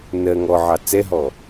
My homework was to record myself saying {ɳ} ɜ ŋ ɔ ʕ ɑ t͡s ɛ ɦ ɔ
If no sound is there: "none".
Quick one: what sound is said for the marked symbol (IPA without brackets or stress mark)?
n